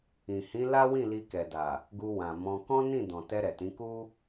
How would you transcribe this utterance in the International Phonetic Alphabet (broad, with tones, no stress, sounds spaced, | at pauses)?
ĩ˨ h ĩ˨˦ l a˦ w ĩ˦˨ l i˧ k ɛ˨ d a˨ | ɡ u˧ w ã˨ m ɔ̃˧ k ɔ̃˦ n ĩ˦˨ d ɔ̃˨ t ɛ˧ ɾ ɛ˨ t ĩ˨˦ k u˦